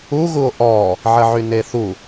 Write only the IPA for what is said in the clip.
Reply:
u ɣuo̯ʔɔ | ʕəʕyneθu

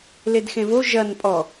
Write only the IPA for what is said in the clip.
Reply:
ledxẽvo ʒɐn pʼɔ

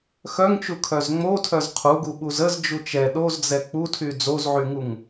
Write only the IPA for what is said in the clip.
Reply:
xœŋt͡ʃukʰœz ŋ͡motʰœz qʰuɡuɓuz əzd͡ʒu t͡ʃɛ ɗozd͡zɛ k͡putʰy d͡zozʕyŋuŋ

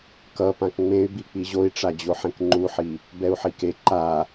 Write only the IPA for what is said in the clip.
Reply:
kʌ pãkŋ͡mẽy̯bi k͡piʑoi̯ʈ͡ʂa d͡ʑoħẽkŋ͡ǃuħi | bɛu̯ħike ǃa

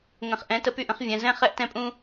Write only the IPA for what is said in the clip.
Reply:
ŋə̃˨χʔɛ̃˨˦ tə˧py˦˨ʔə̃˦χ vʲɛ̃˧ zɛ̃˦ χɛ˦ʔtɛ̃˦pʼũ˦

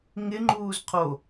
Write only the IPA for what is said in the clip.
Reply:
ŋɪŋ͡ǃuːz qʰo

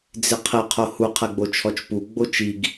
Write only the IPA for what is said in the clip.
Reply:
d͡zɪqʰɪ qʰohu qʰɛɡ͡bot͡ʃʰɔt͡ʃpu ɡ͡bot͡ʃiɡ

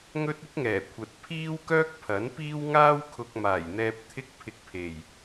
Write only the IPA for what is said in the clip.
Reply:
ŋɵ˥t̚ɪ˥k̚ŋɛː˨˩ kʷʰɐ˨t̚pʰiː˥wkœː˥k̚ pʰɐ˨˥npiː˥w ŋaː˥wkʰʊ˧k̚maː˨˩jn̪ɛː˧p̚ t̪ʰɪ˥k̚pʰɪ˧k̚pʰe˨˩j

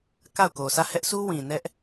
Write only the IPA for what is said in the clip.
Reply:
ka˦˨ʊ̯ko˨ sʰä˦˨hɛ˦ʔsʰu˦ wĩ˨nɛ˦ʔ

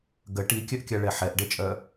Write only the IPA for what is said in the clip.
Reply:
ɡə ʈikʲœʔkʲaɭɛ ħɛʔɖet͡ʃʼœ

